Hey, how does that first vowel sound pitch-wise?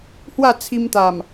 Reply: falling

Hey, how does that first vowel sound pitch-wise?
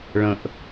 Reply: high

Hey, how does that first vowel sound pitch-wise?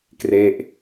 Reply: falling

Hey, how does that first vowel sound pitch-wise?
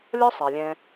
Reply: high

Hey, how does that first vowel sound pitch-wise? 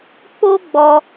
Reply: high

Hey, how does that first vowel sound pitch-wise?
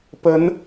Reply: rising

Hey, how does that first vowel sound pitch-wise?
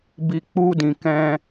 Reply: low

